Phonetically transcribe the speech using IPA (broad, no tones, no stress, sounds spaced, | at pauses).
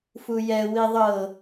f u j ɛ w i ðˤ ɤ